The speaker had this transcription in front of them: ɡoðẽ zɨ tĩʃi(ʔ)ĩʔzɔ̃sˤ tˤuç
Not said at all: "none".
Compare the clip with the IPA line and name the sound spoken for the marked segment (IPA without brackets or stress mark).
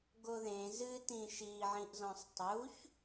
ʕ